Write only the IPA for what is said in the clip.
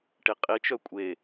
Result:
ʈiqʼit͡ʃœ kʷʼe

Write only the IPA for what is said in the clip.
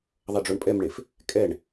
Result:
ðˤʌɖ͡ʐoɳpʼɛmɳef | kʼɛɳ

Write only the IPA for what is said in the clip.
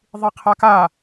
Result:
ðˤiqʰaka

